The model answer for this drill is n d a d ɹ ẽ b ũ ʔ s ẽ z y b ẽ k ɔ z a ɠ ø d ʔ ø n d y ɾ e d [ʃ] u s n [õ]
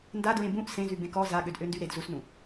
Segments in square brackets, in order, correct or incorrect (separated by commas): incorrect, incorrect